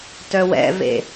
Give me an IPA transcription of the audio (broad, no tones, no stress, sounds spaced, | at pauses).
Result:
t œ w ɛ̰ v ḛ